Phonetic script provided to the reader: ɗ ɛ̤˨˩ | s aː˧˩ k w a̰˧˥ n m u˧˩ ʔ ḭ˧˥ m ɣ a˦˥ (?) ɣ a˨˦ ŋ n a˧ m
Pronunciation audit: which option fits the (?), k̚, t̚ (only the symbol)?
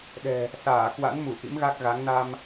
k̚